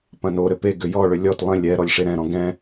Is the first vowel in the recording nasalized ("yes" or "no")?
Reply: yes